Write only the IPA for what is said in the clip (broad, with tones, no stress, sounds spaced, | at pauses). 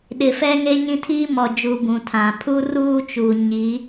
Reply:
ɗ ɪ˨ f ɛ˦ ŋ e˦ ɲ ĩ˦ tʰ iː˦ m ɔ˨ d͡ʒ u˨ b ũ˨ tʰ ã˨ pʰ u˦ r uː˦ t͡ʃ u˨ ɲ i˨˦